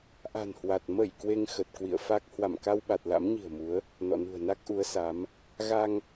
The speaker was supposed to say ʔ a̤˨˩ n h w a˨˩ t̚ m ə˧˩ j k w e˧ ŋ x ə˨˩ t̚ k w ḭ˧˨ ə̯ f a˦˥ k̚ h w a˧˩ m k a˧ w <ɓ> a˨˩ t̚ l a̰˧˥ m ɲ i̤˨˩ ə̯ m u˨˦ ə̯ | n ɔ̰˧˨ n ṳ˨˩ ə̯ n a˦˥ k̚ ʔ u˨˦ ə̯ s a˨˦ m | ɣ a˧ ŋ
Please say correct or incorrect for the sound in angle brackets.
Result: correct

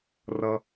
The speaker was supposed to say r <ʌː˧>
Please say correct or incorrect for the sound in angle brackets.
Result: incorrect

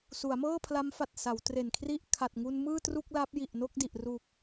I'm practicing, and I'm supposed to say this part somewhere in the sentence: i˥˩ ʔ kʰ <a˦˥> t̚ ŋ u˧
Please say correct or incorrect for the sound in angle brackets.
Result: incorrect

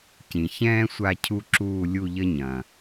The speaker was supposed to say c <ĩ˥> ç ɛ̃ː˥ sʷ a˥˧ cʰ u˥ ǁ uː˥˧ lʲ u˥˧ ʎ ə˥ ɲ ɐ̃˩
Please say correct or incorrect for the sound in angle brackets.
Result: incorrect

